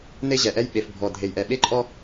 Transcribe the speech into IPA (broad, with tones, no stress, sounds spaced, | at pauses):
n e˦ ʑ ɛ˨ ʔ ɛ˦ j ɓ e˨ f bʱ ɔ˨ dʱ e˨ j ʔ ɛ˨ ɓ e˦ ǃʼ ɔ˦